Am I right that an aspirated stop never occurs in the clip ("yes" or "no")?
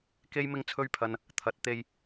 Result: no